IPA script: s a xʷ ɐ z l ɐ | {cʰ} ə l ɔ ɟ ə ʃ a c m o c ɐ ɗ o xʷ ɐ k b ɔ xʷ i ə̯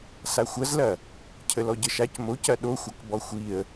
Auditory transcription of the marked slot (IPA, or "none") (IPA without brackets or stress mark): cʰ